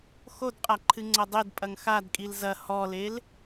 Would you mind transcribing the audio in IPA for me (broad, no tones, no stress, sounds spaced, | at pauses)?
x o d qʼ a ǃʰ ɨ ŋ͡ǀ ɐ dˤ e d pʼ ɐ ŋ x a d kʼ i l z ɐ h ɔ l e l